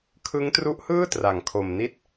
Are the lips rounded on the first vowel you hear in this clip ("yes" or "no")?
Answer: no